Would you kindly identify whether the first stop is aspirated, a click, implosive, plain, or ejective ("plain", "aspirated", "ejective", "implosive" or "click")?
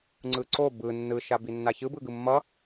click